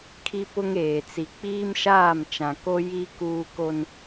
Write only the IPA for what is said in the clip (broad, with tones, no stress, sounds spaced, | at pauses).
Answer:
kʰ i˦ p ʊ˦ ŋ eː˨ t͡s i˨ k͡p iː˦ m ʃ aː˦˨ m t͡ʃ ã˨ k o˦ j i˦ k uː˦ k o˦ n